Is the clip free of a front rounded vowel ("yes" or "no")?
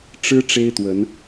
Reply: yes